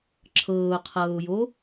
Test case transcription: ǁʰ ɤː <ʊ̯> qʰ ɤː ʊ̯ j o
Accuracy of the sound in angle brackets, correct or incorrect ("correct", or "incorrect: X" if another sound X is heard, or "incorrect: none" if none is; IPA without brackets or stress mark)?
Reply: correct